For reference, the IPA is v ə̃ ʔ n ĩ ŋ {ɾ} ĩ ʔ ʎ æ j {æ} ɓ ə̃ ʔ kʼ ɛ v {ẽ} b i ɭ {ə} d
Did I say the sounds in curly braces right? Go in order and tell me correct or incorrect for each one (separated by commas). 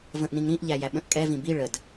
correct, correct, incorrect, correct